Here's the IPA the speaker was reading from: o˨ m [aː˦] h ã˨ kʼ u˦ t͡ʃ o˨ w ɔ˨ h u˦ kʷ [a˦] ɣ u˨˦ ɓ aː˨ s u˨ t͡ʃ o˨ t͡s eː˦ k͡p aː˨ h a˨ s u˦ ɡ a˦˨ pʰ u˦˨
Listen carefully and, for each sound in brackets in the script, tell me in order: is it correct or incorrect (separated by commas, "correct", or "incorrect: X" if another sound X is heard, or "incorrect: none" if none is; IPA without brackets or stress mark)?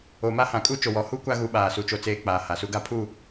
incorrect: a˦, correct